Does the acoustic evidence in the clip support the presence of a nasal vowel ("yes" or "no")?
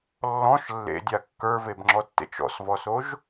yes